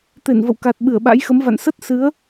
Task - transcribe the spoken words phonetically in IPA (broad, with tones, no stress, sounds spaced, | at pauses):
t̪ e˧˩ n v ə̰˧˨ w k a˨˩ t̚ ɓ ɨ˧˩ ə̯ ɓ a̰˧˥ j x ə˨˦ m v a̰˧˨ n s ə˦˥ t̚ s ɨ˨˦ ə̯